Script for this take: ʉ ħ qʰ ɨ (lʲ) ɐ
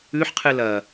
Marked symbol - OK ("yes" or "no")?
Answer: no